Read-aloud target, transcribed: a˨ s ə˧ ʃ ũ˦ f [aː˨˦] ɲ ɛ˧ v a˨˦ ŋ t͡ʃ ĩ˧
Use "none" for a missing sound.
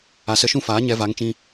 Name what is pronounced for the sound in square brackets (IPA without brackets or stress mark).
aː˨˦